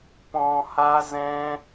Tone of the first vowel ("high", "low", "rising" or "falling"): low